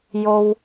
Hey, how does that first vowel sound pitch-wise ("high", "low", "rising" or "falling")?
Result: low